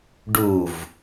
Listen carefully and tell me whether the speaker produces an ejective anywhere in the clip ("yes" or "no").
no